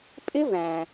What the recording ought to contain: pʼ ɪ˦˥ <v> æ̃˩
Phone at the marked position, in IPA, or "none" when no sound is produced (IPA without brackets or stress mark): v